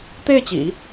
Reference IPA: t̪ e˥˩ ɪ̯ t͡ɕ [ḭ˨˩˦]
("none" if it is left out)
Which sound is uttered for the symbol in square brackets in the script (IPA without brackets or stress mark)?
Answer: ḭ˨˩˦